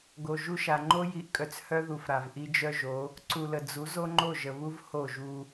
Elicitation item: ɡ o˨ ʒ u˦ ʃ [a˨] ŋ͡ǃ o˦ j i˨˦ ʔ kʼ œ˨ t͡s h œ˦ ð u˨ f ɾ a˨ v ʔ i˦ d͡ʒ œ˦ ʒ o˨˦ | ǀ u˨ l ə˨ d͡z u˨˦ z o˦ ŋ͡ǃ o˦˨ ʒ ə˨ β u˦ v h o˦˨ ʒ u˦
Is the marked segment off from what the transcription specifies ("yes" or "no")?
no